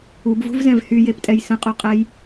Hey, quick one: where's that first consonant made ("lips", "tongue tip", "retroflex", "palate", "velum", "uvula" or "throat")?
lips